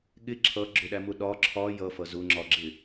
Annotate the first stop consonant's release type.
implosive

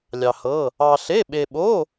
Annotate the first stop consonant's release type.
implosive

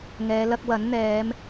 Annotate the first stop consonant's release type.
plain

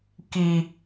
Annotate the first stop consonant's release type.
plain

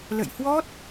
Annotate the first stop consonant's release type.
plain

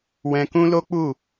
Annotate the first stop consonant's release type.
plain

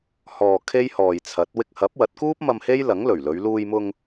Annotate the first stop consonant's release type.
aspirated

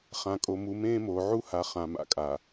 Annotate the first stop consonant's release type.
ejective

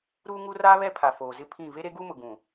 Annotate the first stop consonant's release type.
aspirated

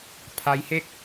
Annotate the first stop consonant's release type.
aspirated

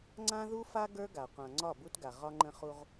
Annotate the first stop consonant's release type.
click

